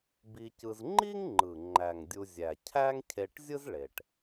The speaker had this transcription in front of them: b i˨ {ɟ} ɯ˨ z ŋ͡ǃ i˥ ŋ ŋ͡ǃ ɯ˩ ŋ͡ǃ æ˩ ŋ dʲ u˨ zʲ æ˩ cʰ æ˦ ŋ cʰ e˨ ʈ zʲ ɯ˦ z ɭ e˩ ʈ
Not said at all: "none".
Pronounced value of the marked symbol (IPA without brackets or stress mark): c